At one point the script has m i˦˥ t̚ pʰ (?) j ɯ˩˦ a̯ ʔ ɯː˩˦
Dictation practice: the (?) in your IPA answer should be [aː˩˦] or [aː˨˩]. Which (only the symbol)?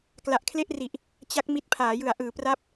aː˩˦